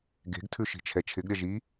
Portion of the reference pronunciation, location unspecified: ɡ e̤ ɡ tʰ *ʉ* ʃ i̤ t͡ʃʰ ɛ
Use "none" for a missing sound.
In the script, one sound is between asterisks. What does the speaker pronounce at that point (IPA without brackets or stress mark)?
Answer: ʉ